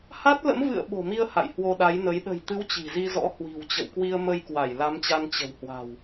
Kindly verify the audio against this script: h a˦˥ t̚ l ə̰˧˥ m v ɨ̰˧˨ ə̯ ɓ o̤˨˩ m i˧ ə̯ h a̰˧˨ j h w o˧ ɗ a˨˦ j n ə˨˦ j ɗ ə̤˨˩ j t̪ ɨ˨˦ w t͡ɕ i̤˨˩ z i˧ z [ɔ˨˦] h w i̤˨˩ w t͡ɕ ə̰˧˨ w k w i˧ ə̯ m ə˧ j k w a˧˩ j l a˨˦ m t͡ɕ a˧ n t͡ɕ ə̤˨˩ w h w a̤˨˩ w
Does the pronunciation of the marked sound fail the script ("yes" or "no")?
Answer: yes